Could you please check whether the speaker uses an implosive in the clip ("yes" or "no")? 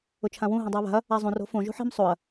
no